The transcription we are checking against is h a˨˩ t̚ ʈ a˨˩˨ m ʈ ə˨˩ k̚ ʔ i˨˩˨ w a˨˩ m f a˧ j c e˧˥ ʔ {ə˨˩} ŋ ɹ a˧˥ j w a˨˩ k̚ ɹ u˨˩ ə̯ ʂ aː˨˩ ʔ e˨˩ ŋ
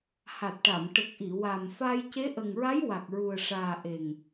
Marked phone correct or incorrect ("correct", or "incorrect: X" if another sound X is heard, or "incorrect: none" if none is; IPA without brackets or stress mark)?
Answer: correct